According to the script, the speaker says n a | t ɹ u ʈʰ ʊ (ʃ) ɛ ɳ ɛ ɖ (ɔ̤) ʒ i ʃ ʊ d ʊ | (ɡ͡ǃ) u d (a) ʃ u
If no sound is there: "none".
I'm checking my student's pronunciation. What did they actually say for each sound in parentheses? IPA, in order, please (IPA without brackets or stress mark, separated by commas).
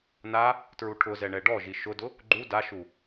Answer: z, ɔ, ɡ͡ǃ, a